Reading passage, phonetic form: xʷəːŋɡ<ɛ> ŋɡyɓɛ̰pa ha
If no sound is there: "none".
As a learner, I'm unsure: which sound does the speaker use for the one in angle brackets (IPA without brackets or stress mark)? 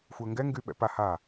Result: ɛ